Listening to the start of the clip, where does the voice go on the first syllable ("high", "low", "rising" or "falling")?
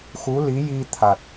rising